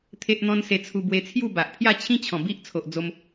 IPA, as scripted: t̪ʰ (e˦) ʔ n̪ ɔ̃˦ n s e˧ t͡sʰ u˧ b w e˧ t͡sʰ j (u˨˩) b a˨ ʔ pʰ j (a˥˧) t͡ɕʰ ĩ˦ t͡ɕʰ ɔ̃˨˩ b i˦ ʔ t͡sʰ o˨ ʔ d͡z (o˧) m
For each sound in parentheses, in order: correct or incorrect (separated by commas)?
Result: correct, incorrect, correct, correct